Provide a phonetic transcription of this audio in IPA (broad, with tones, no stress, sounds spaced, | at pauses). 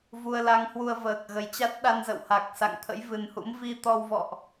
v u˧ ə̯ l a˧ ŋ h w u˧ ə̯ v əː˨˩ k̚ ɣ ə˨˦ j t͡ɕ a˦˥ t̚ ɗ a˧ n z ə̰˧˨ w h a˨˩ k̚ s a̰˧˨ ŋ t̪ʰ ə̰˧˥ j v ɨ˨˩ n h ṵ˧˥ m v i˧ t̪ ɔ˧ w v ɔ̰˧˨ ʔ